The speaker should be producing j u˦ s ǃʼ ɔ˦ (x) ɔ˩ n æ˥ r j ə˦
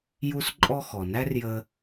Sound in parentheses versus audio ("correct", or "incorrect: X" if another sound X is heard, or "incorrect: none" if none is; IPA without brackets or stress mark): correct